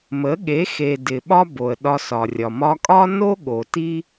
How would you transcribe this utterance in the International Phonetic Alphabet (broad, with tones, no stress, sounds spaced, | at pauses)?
m ə˨˦ ɠ e˨˦ x e˨ d ɪ˨ ɓ ɒ˦ b o˨ ə̯ ɗ ɒ˧ s ɒ˨ rʲ ɒ˨ m ɒ˧ kʼ ɒ˦ n o˦ ɠ o˨ t i˦